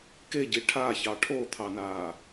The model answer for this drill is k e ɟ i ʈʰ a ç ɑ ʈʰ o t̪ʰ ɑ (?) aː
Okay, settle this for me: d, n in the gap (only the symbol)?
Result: n